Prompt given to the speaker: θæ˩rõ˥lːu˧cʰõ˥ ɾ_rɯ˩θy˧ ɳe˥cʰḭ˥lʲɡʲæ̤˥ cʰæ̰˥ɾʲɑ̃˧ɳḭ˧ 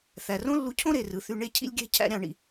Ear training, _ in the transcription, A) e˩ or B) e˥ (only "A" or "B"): A